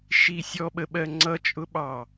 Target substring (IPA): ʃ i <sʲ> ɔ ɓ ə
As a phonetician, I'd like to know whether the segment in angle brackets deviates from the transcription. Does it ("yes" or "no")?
no